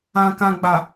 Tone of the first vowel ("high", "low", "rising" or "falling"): low